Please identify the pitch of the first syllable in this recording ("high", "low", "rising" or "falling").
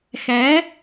rising